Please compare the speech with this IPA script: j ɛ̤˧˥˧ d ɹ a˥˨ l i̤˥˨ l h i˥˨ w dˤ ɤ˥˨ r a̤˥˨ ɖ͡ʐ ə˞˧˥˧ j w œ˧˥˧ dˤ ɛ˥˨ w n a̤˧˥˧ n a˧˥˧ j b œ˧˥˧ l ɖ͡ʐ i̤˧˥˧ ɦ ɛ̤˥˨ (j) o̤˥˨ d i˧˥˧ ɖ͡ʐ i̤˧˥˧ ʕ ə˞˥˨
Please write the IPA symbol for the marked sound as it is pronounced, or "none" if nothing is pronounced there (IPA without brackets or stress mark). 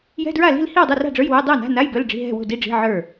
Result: w